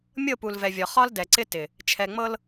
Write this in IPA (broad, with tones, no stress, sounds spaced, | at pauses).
mʲ ɤ˦˨ p u˨ l v ɛ˨ vʲ ɒ˨ χ ɒ˦ l d ɛ˨ ǀ ɪ˦ t ɪ˨ | t͡ʃʰ ɛ˨ ŋ͡m ɤ˦ l